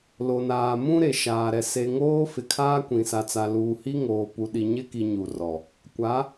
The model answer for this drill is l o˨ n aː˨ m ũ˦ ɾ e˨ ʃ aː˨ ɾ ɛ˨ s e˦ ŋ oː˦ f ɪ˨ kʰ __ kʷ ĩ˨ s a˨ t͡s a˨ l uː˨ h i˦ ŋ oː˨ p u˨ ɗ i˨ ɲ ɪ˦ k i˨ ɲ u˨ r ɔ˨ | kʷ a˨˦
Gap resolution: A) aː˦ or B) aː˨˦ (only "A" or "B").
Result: A